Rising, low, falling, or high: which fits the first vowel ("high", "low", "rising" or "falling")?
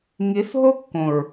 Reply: rising